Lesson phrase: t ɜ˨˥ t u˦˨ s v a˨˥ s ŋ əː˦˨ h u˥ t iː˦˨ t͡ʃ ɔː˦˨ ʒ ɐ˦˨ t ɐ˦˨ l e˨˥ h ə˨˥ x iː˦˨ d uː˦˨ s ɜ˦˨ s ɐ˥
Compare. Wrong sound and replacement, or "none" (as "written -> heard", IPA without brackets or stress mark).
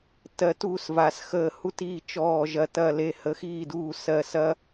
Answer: ŋ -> x